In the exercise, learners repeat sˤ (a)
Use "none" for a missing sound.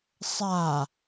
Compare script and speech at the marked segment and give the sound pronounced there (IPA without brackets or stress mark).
a